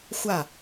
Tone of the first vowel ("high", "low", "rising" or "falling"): falling